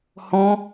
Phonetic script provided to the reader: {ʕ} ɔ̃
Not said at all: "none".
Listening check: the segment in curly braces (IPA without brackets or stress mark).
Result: h